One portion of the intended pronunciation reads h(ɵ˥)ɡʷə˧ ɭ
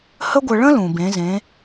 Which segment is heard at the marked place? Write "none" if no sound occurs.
ə˥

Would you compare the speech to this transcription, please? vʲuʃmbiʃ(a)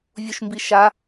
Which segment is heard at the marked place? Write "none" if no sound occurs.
a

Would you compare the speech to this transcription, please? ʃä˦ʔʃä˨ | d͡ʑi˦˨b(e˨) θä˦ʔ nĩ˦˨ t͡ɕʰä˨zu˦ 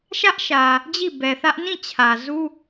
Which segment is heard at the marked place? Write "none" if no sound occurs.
ɛ˨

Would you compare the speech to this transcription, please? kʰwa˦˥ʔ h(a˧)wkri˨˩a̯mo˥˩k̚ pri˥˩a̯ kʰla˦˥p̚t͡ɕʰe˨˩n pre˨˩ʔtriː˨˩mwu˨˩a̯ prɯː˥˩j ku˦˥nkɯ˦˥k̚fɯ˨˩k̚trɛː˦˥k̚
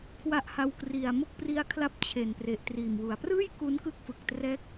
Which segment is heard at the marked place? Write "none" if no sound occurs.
a˧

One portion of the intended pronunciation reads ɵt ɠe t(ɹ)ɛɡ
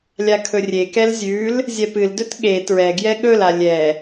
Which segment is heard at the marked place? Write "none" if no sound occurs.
ɹ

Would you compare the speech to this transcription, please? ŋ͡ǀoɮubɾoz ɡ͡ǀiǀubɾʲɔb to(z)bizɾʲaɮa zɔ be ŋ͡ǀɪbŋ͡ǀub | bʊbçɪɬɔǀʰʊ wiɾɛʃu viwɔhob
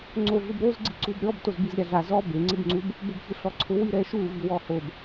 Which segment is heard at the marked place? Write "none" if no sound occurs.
z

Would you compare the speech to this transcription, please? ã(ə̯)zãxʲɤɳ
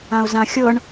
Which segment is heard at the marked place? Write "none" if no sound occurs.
ʊ̯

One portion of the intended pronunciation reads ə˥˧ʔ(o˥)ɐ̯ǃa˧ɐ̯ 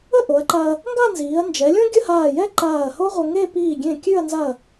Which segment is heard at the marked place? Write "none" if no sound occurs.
o˩˧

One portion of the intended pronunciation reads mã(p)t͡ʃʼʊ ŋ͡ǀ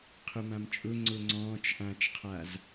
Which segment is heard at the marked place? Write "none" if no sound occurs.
m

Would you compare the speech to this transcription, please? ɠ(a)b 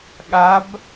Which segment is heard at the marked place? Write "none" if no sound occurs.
a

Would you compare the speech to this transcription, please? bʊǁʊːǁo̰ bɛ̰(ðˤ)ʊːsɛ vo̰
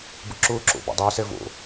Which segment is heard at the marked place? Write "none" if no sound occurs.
dˤ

